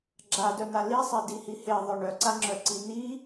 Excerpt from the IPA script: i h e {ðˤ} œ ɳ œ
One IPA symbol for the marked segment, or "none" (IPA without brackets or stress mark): ðˤ